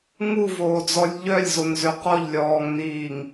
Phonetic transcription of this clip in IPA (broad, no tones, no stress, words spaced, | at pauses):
ŋuvoːd͡zɔlʲ ʎœlʲzonzø qɔʎlʲɔːŋniːŋ